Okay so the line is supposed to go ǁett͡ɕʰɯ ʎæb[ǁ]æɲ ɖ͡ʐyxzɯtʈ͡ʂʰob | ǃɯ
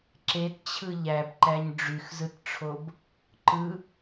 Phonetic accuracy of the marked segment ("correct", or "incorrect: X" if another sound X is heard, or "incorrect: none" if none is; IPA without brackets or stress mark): incorrect: ǃ